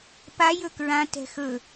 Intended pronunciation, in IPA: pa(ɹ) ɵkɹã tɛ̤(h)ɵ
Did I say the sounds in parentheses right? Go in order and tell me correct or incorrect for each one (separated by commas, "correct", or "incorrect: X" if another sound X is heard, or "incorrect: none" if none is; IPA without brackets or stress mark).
incorrect: j, incorrect: x